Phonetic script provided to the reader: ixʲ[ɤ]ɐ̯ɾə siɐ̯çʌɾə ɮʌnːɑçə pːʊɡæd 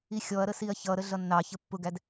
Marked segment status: incorrect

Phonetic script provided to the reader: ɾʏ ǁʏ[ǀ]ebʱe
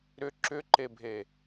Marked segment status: incorrect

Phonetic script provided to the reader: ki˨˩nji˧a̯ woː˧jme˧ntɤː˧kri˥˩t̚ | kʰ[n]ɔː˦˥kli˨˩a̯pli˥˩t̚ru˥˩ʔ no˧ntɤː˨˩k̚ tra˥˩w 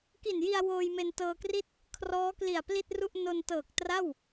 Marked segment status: incorrect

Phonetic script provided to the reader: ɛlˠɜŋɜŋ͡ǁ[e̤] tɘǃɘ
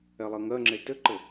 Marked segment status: incorrect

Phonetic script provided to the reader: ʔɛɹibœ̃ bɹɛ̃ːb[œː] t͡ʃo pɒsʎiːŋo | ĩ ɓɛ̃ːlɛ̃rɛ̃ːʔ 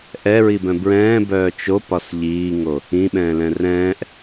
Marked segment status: correct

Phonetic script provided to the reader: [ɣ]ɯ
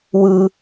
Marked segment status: incorrect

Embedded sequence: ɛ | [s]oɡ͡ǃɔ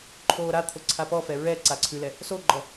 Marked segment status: correct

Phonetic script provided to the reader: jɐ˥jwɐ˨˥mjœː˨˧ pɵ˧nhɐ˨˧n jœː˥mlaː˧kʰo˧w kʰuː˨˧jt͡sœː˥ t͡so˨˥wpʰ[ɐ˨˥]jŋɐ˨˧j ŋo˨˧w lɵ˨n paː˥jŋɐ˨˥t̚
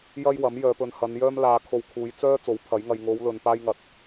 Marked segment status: correct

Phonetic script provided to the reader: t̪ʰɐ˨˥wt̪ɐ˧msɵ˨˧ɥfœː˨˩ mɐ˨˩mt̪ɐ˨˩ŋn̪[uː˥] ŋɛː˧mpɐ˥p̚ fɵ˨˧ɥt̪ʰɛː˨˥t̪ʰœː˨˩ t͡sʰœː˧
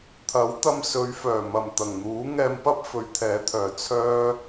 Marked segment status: incorrect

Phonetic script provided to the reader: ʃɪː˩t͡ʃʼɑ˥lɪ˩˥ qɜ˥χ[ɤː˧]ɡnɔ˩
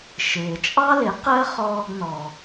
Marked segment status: incorrect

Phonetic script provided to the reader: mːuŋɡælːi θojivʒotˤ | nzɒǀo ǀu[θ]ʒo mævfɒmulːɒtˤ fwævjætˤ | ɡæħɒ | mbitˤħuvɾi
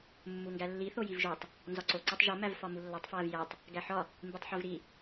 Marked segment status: incorrect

